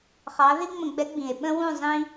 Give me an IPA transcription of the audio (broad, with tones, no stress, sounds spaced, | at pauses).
χ ɑ˨˦ ð i˦ ŋ͡m ə̃˧˩˧ ɡ͡b ɛ˨˦ ɡ͡b ĩ˩ e̯ ɓ ə̃˦ w ũ˦˨ zˤ ĩ˦